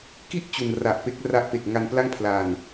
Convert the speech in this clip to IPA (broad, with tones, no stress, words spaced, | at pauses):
ki˥˩ʔ t͡ɕu˨˩nra˨˩ʔpe˥˩k̚ ra˦˥ʔpe˨˩k̚ ŋa˧npla˥˩ŋpʰla˨˩n